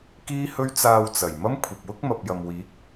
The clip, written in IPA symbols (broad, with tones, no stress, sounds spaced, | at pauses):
k iː˥ h ɵ˥ ɥ t͡s aː˧ w t͡s ɐ˨˩ j m ɐ˥ m kʷʰ ɐ˨ p̚ w ʊ˥ k̚ m ɐ˨ p̚ j ɐ˨ m w iː˨˥ k̚